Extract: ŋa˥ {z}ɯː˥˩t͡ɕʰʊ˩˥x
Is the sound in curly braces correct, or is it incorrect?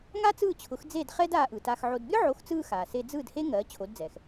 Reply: incorrect